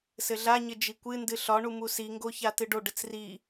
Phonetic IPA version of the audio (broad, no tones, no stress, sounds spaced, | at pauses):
s ɘ ɮ a ɲ ɘ d͡ʒ i kʷ ɨ n d ɨ ɬ ɒ ɳ u m u s i ŋ ɡ o ç a t ɨ ɖ o ɖ ɘ t͡s r i